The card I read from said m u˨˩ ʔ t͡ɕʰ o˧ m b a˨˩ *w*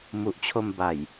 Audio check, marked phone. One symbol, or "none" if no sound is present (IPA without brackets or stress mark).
j